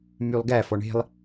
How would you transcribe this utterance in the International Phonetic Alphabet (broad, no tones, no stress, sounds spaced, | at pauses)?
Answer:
m y lˠ ɡ æ f ɔ ɳ e̤ lˠ